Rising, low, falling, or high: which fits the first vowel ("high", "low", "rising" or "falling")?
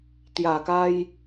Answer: low